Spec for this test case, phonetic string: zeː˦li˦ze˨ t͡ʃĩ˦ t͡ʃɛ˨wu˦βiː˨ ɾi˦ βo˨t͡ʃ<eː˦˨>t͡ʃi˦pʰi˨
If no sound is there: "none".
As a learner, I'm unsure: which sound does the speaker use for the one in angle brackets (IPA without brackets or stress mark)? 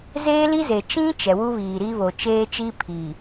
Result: eː˦